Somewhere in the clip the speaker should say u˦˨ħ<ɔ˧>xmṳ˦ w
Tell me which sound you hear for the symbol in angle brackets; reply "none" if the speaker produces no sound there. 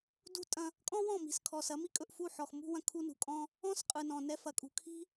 ɔ˨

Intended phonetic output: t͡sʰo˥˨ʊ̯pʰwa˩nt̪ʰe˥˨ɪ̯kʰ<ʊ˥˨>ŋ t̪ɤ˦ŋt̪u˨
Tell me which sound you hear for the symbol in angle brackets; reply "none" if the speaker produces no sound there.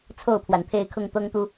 ʊ˥˨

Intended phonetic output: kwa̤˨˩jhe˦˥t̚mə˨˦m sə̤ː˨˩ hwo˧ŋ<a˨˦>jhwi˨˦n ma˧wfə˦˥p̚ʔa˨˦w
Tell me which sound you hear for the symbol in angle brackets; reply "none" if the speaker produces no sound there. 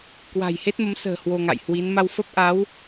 a̰˧˨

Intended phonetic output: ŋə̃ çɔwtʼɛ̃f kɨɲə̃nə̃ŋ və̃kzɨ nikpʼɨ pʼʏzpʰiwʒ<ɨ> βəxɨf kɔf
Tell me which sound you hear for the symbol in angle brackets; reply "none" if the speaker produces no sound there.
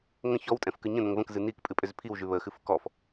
ʉ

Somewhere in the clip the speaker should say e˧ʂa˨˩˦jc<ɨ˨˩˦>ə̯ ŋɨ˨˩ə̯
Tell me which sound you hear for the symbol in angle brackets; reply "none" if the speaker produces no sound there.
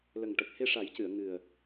ɨ˨˩˨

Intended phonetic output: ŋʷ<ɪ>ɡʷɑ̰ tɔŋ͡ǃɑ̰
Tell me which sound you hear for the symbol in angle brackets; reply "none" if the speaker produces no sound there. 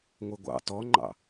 ɪ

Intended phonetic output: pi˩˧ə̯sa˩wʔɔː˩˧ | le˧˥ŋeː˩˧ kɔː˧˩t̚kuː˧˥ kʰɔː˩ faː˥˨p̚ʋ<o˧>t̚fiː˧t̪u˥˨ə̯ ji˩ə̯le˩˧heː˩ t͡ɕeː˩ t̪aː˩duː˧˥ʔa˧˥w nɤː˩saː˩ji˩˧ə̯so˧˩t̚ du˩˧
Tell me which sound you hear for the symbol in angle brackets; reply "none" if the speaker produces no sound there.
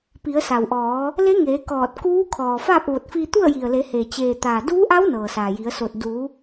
o˧˩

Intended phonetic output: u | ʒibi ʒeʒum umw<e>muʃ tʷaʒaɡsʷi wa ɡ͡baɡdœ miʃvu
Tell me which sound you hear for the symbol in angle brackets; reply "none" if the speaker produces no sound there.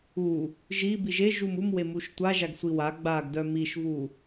e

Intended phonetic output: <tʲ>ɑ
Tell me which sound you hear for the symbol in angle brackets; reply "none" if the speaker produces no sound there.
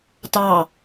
t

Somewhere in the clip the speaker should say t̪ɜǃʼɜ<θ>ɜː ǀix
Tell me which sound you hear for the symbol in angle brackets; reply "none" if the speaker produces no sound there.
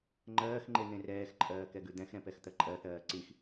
θ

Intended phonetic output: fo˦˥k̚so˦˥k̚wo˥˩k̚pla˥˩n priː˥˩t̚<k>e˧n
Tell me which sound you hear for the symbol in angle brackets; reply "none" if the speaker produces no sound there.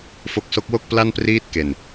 k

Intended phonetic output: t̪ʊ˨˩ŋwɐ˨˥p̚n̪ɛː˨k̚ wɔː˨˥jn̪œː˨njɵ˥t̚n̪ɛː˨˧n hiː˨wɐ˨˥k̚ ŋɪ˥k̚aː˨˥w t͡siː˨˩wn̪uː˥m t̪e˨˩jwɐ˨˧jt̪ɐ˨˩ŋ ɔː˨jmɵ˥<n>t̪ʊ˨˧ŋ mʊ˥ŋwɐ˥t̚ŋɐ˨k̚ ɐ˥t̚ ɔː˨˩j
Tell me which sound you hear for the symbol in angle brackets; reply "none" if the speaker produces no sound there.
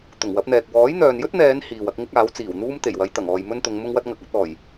n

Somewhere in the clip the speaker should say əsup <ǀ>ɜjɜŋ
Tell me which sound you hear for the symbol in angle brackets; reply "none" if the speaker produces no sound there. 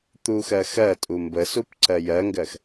ǀ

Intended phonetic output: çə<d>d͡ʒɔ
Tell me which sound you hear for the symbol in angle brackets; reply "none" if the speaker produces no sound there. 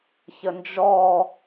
n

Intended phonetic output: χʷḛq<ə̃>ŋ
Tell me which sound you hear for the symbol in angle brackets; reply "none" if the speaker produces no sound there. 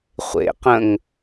ə̃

